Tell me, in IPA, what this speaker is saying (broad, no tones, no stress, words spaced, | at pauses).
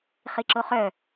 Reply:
χiǁoχœ